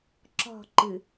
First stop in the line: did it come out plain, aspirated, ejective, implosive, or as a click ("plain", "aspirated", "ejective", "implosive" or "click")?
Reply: click